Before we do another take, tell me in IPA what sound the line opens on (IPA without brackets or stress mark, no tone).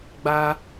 ɡ͡b